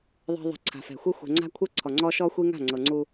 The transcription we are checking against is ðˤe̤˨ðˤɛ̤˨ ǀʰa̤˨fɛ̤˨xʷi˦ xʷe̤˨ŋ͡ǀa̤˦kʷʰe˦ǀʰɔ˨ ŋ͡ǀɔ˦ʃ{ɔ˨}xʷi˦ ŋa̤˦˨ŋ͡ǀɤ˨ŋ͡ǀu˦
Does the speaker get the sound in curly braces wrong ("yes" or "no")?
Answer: yes